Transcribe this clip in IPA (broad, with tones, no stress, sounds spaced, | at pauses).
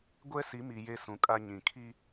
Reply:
ɡʷ ɛ˦ s i˨˦ m i˨ j e˦ s ũ˨ kʼ a˦ ɲ ĩ˨ kʰ i˦